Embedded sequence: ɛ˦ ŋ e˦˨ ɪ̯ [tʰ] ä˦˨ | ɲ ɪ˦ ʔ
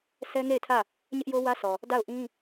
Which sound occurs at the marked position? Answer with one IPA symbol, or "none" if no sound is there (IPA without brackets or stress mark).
tʰ